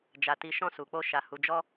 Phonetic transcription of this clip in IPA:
d͡ʒ a˨ t i˨ ʃ ɔ̃˧ s u˨ k͡p o˧ ʃ a˨ h u˨ d͡ʒ ɔ˧

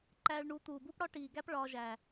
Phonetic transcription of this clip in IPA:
ǃ æː˧ ɭ ɳ u˨˦ t̪ uː˨ b u˦ p ɽ ɒ˦ ʈ iː˨ ɡ æ˦ p ɭ ɒː˧ ʒ æː˨

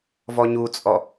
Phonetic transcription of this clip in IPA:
v ɔ ɲ u t͡sʼ ɔ

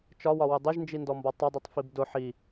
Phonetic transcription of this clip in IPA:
t͡ʃ ɒ w ɒ w ʊ dˤ ɪ ʒ n d͡ʒ i n d ɔ m b ɒ tˤ ʌ dˤ i tˤ f i b d ʊ ħ i

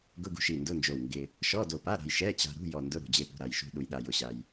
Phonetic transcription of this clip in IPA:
ɡ ʊ˧˥˧ ɡ ṳ˧ ʃ i˧˩ n d ʊ˧˥˧ n d͡ʒ o˧˩ w ŋ ɡ ɪ˧ | ʃ ɔ˧˥˧ d o˧˩ p a˧˥˧ ɾ a̤˧ j ʃ ɛ˧˥˧ t͡ɕ a̤˧ ɾ ṳ˧˥˧ j ɔ˧˩ n d ʊ˧˥˧ ɾ ṳ˧˩ d͡ʑ e˧ p ṳ˧˩ ɾ a˧˩ j ʃ ṳ˧ ɗ u˧ j ɗ a˧ j ʊ˧˩ ɕ a˧ j

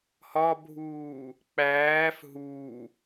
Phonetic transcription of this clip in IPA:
h ɒ bʱ uː | k͡p æː f ɦ uː

